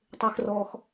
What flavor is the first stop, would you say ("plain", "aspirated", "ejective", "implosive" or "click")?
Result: plain